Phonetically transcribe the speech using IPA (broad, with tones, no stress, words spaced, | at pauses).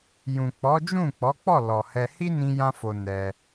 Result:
jũ˨ k͡pɔ˨˦d͡ʒũ˦˨ k͡pɔ˨˦k͡pɔ˦˨ lɔ˨ hɛ˧ hi˦nĩ˧jã˧fo˨ nɛ˧